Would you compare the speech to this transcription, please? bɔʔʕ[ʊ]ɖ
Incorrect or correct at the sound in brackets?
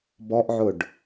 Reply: correct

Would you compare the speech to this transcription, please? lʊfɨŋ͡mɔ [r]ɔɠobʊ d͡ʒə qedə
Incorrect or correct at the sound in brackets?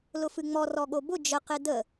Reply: correct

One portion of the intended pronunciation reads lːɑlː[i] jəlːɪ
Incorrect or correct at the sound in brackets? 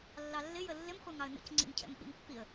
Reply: incorrect: ɪ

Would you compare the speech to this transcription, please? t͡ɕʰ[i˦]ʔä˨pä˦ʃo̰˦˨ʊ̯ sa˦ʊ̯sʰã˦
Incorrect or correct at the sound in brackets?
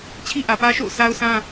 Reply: correct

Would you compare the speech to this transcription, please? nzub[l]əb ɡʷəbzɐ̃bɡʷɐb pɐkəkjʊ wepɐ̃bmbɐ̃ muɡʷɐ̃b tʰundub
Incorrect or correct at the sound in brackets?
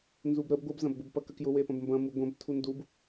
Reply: incorrect: ɾ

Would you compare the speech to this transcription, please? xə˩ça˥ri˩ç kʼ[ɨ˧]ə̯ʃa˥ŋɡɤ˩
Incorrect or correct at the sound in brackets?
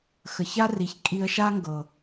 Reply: incorrect: i˧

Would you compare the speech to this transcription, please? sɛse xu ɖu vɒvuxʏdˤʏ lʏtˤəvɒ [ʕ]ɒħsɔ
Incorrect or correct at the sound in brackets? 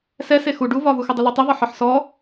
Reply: incorrect: ħ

